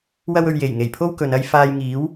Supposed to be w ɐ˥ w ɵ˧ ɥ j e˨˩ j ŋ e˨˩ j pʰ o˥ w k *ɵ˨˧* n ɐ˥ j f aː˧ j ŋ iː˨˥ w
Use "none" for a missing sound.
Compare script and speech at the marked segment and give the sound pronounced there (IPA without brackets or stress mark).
ɵ˨˧